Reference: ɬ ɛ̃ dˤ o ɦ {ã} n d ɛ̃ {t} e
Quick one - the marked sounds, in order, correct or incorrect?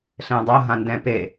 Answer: correct, incorrect

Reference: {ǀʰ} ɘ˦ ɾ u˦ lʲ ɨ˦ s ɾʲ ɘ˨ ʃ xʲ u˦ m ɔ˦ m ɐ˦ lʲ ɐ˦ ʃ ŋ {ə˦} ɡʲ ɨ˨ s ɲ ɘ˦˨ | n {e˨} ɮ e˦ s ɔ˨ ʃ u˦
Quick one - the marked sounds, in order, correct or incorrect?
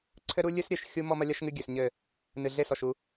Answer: correct, incorrect, incorrect

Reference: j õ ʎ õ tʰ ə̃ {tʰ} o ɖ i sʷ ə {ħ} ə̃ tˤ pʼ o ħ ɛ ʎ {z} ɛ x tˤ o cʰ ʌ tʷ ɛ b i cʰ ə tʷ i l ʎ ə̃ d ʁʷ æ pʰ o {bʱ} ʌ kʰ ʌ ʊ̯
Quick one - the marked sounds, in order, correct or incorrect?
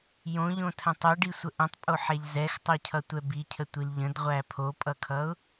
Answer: incorrect, incorrect, correct, incorrect

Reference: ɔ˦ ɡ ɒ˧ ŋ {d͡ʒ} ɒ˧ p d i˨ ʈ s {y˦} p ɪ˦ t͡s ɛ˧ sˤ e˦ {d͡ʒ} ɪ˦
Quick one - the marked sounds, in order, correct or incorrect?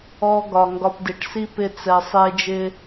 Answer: incorrect, incorrect, correct

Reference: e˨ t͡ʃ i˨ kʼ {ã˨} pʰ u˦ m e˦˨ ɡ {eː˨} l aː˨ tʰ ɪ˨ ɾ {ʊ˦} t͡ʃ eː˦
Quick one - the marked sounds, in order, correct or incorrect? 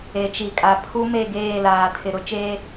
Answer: incorrect, incorrect, correct

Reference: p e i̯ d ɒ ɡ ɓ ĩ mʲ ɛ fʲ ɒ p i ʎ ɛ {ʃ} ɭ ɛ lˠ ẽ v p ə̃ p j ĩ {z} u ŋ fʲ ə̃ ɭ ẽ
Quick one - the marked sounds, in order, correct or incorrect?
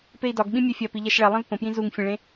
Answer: correct, correct

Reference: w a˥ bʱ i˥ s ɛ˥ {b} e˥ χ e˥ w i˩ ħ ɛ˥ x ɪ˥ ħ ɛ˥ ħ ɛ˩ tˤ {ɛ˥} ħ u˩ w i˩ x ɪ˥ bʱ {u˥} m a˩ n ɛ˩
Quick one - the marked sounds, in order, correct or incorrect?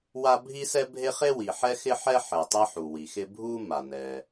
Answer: incorrect, correct, correct

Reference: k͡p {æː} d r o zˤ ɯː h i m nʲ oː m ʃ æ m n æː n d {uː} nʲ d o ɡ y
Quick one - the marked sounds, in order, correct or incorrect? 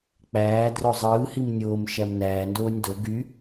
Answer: correct, incorrect

